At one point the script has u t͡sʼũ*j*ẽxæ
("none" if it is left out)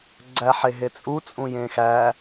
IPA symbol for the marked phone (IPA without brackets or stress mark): j